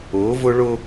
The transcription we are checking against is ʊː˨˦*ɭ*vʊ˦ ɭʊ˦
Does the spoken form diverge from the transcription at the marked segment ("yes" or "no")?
yes